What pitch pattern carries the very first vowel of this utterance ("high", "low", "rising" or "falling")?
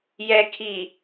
low